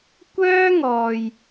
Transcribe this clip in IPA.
kʷ œː˥ ŋ ɔː˨ j

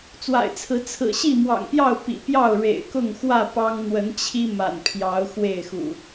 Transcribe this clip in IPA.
t͡s w a̰˨˩ ɪ̯ t͡sʰ ɹ̩˨˦ t͡sʰ ɹ̩˨˩ ɕ i˥˨ m w ɑ̰˨˩ ŋ p j ɑ˥˨ ʊ̯ p ḭ˨˩ p j ɑ˥˨ ʊ̯ ɻ ḛ˨˩ ɪ̯ k ʊ˥˨ ŋ x w ä˥˨ p ɑ˦ ŋ n̪ w ə˨˦ n t͡ɕʰ i˦ m a̰˨˩ n pʰ j ɑ˨˦ ʊ̯ x w e˥˨ ɪ̯ x ṵ˨˩

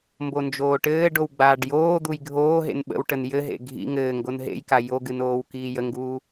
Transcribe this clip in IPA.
m b o n d͡ʒ oː ʈ ɘː ɖ o w ɡ͡b aː ɖ j oː d̪ u j ɡʱ oː ɦ ḛ n ɓ ə̰ w ʈ ə n j ɘ ɦ ḛ ɡʱ ḭ ŋ ɘː ŋ ɡ o n ɦ ḛ j k a j o ɡ ɨ n oː w k iː j ə ŋ ɡ uː

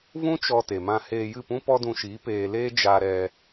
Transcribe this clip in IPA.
v ũ˦ t͡ʃ ɔ˧ t e˨ m ã˧ h eː˧ j ɨ˦˨ p ũ˦ p ɔ˦ d ũ˧ ʃ iː˨˦ p eː˧ l eː˦ d͡ʒ a˧ ɾ ɛ˧

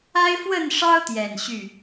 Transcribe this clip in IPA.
a˦ ɪ̯ f w ə˥˨ n ʂ ɑ˦ ʊ̯ t̪ j ɛ˨˩ n ɕ y˥˨

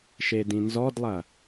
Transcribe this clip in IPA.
ʃ e d ĩ n z ɔ d lˠ ɐ

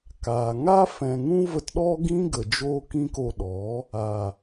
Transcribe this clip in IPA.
k aː˨ ŋ a˦ f ɛ̃˨ ŋ ũ˦ v ə˧ t ɗ ɔ˦ ɡ ĩ˦ ɡ ə˨ d͡ʒ oː˧ k ĩ˦ k o˧ ɗ ɔ˨˦ | a˨

